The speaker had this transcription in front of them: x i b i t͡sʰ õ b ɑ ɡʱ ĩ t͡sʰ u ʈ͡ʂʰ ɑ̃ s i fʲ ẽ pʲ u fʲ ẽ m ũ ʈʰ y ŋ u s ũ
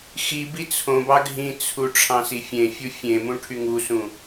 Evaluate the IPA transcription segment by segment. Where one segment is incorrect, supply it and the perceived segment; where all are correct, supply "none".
pʲ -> fʲ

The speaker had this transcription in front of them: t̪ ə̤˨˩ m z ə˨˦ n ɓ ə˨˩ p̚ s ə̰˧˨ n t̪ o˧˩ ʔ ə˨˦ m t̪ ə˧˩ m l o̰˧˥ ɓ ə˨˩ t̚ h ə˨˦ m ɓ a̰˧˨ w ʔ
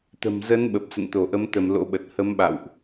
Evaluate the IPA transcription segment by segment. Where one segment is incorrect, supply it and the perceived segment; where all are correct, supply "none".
none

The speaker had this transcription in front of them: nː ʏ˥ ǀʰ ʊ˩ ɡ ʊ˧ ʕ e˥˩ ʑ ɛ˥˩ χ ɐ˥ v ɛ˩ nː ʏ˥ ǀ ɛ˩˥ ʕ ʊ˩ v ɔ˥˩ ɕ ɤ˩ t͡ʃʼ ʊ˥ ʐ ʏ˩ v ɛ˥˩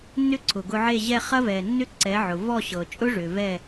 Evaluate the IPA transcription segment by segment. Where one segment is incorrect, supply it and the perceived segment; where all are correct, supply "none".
none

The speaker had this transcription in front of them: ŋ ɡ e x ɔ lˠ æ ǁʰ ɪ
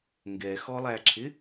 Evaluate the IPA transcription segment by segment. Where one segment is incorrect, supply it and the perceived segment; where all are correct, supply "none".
e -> ɛ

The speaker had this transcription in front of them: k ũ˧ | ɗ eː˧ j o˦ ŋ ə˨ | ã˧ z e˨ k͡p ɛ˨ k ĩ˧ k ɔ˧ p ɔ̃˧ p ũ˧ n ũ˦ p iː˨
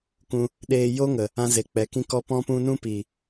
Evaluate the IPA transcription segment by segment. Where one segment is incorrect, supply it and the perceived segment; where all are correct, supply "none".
none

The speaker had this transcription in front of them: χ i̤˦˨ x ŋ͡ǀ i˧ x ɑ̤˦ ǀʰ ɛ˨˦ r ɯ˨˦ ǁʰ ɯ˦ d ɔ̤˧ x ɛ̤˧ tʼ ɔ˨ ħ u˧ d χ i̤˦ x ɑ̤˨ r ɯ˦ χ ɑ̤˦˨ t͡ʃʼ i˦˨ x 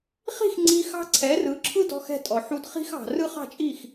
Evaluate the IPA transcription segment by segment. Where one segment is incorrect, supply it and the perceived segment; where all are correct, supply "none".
none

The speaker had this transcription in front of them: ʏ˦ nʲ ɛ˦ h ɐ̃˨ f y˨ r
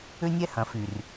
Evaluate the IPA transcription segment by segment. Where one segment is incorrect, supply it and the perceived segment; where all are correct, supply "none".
none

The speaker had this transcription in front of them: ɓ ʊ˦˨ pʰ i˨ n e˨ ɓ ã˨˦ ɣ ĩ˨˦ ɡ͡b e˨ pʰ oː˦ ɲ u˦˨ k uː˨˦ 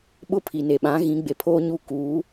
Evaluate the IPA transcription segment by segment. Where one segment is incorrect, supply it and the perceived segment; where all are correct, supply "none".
none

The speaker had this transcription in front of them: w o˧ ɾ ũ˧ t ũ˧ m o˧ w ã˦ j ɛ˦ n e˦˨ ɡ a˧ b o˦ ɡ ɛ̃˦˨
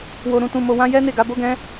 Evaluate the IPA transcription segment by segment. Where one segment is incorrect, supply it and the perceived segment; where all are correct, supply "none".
ɛ̃˦˨ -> ɛ̃˦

